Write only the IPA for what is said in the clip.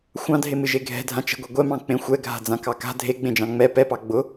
xʷ ɑ̃ dʱ e m ɨ ʒ e ɡʱ ɛ̤ dʱ ã t͡ʃ ɛ̤ ɡʷ e ɡʷ ɛ m ɑ̃ k͡p ẽ xʷ ɛ ɡʱ a̤ d͡z ã k ɑ k a̤ dʱ e ɡ͡b ẽ d͡ʒ ɑ̃ ŋ͡m ɛ p ɛ p ɑ ɡ͡b ʊ

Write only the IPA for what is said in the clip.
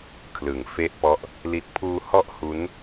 kʰ l ɯ˩˦ ŋ f e˦˥ ʔ p ɔ˦˥ ʔ | l i˨˩ t̚ pʰ uː˧ h ɔ˦˥ ʔ h u˦˥ n

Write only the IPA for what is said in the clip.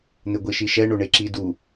n̪ ɪ ɡʷ i ʃ i ʃ ɛ ɳ o ɳ e ǁ i d u

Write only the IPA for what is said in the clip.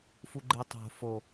f u ɡ͡ǃ e tˤ o̤ f o

